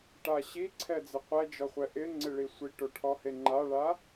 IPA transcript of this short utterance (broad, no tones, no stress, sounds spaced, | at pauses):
ʈ a ɕ i ǀʰ ɛ d͡z ɪ qʷ ɛ d͡ʒ ɔ χʷ ɛ ʔ ɪ ŋ͡ǀ ɪ ɭ i sʷ i ʈ o ʈʰ ɔ h e ŋ͡ǃ a ɭ a